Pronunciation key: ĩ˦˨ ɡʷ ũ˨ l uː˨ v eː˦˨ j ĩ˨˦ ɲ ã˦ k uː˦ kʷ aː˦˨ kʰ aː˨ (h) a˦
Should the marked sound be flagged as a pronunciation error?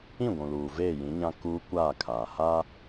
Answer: no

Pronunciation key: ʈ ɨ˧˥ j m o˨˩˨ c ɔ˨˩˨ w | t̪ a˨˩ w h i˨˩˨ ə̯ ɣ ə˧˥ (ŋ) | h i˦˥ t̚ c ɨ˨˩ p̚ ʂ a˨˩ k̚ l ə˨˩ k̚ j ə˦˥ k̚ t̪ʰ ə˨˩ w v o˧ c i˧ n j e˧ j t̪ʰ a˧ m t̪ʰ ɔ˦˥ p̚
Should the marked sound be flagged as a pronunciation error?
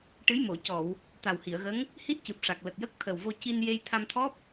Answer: no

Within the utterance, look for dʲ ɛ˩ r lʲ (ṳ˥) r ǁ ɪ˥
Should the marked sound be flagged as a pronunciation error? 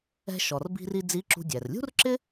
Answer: no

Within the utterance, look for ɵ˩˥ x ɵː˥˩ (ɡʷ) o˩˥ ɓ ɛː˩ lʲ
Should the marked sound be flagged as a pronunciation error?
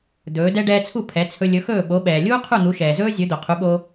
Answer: yes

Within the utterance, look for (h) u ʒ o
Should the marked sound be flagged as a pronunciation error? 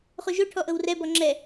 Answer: yes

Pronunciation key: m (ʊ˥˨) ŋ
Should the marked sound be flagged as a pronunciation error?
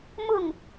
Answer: no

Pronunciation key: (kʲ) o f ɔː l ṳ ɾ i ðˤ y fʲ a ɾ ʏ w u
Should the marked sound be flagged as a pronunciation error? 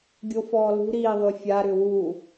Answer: yes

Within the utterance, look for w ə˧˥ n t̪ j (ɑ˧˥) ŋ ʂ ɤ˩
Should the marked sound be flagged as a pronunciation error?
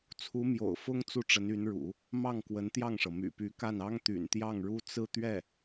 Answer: yes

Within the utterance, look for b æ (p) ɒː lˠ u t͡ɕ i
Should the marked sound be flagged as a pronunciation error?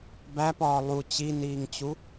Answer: no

